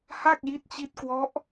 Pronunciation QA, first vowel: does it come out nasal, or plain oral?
oral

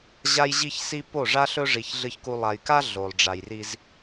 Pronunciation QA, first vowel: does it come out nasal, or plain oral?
oral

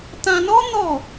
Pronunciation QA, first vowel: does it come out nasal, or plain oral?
nasal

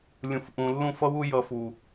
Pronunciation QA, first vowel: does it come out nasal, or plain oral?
nasal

